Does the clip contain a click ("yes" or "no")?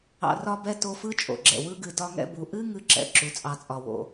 yes